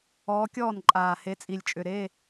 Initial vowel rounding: rounded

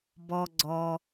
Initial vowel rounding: rounded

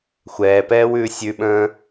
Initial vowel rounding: unrounded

